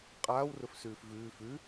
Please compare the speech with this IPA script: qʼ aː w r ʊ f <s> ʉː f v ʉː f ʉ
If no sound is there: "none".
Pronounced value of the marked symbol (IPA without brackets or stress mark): s